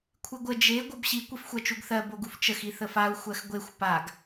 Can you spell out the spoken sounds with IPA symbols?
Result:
kʷʰɨɡʷə d͡ʒe ɡʷʌbɕi kʷifxʷɜt͡ʃuɡθɜ boɡuft͡ʃəx iθəfau̯ xʷɜxɡʷexʷ paɡ

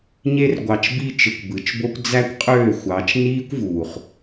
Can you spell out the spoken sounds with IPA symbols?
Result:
ɲe˧rɡʷɑ˨t͡ʃbi˧ t͡ʃɯ˨kʷbɯ˨t͡ʃbo˦kʷ d͡zæ˦kʷqʼøː˦˨xʷɑ˨˦t͡ʃ niː˦kʷvuː˨χ

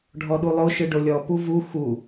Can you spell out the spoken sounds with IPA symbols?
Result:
ɖʱɔɗulˠo ʃɯɖolʲɔ puvu xu

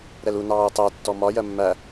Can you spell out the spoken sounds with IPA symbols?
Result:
ɾɛlu nɑːʊ̯tˤæ tːɔmɒ jɜmːæ

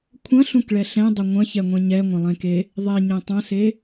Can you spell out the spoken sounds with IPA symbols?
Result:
kʷʰɐ̃ɬũkɭɛ ɬɛ̃dˤʊ ŋʷɐ̃çɛŋʷẽ ɲɛŋʷɐ̃lˠẽke | ðˤeɲẽ tˤɐ̃se

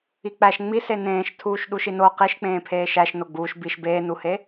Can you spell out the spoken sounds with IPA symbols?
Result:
ik͡pæʃ ŋ͡mise nẽːʃtʰuːʃ ɗuʃino qiʃk͡pẽː pʰeːʃæʃ noɡ͡buːʃ biʃ beːnuhe

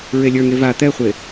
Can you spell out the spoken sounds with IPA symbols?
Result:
ɹelʲə˞ŋe va t̪ɛχʷe

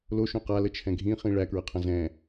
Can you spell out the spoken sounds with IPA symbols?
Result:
loʃõ qalət͡ʃʰɛ̃ ɡʱĩχĩ ɭækɹɐqʰɐ̃ zɛ̃

